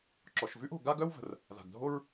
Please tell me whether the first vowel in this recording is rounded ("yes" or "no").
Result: yes